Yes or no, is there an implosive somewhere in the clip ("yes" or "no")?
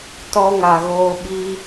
yes